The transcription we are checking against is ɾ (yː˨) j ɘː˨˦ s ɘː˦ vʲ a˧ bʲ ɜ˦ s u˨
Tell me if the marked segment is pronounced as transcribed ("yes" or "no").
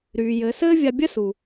yes